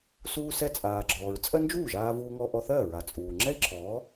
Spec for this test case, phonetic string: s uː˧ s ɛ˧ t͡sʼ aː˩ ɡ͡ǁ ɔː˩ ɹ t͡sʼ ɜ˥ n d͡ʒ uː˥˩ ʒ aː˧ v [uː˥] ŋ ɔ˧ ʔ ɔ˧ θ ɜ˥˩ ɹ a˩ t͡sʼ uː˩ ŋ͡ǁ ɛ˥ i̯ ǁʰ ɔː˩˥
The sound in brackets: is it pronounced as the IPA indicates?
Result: no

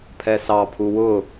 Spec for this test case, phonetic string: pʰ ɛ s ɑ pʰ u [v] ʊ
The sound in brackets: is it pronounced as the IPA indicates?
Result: no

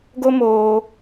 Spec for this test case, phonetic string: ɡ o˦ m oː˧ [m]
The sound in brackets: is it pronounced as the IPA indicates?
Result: no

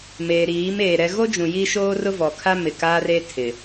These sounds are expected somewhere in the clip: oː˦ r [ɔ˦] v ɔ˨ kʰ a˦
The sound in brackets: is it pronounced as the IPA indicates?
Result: no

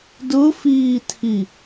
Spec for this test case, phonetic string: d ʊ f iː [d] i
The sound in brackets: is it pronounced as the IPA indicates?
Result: no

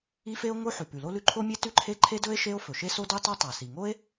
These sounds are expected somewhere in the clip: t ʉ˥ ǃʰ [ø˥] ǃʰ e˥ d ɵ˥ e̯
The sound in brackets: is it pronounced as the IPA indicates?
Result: no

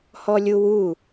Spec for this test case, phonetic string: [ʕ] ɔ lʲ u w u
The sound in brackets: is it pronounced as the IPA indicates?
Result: no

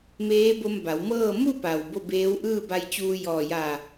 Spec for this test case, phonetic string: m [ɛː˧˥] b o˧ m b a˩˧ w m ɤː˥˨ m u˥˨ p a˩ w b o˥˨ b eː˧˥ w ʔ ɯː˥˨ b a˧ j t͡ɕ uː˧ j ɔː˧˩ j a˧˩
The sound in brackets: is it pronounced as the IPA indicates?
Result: no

